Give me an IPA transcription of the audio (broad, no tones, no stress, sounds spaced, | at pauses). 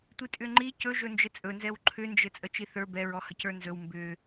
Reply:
tʷ i tʼ ʏ ŋ͡ǃ i c ɵ ʒ ɵ n d͡ʒ ɘ t͡sʼ ɵ n z ɛ w ǃʰ ʏ n d͡ʒ ɘ t͡sʼ ə t͡ʃ i θ ə˞ b ɛ ɹ ɔ h ə c ə˞ n z ɵ w m b ʏ